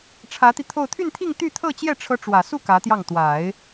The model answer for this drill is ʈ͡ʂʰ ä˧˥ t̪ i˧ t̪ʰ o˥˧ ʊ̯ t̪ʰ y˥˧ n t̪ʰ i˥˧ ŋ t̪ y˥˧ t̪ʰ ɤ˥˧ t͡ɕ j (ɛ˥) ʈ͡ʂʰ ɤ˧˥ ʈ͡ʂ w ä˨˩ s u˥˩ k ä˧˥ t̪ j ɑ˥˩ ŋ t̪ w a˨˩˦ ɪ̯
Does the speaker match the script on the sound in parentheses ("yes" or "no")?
no